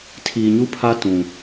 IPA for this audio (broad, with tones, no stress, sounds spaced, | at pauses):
tʰ iː˨ ɲ u˦ pʰ a˦ t ũ˨